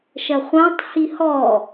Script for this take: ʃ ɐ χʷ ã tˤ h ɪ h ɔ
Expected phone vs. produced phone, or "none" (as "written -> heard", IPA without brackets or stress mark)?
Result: ɪ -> i